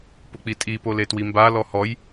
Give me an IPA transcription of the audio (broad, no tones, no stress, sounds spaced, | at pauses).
p ʊ k͡p i tʼ i p o l e t w i m b a l ɔ h ɔ j